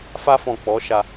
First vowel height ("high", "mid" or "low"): low